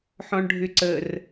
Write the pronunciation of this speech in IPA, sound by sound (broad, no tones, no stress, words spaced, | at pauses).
ħɔ̃ɳɖʱʏǀər